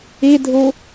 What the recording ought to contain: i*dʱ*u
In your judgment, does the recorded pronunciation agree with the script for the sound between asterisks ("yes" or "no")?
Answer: yes